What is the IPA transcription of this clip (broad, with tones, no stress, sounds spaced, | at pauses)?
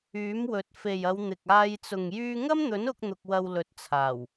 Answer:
yː˨˥ m w ɵ˨˥ t̚ f e˨ j ɐ˨˧ w n̪ ɪ˨ k̚ aː˧ j t͡s ʊ˨ ŋ j yː˧ ŋ ɐ˥ m n̪ ɵ˨˥ n ʊ˧ k̚ n̪ ʊ˧ k̚ w ɐ˧ w l ɵ˨˥ t̚ t͡sʰ aː˨˩ w